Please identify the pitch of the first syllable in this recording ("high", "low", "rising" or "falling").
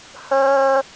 high